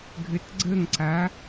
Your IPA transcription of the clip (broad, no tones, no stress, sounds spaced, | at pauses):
ɡʱ ɘ t ɡ͡ǀ ə ŋ ǀ a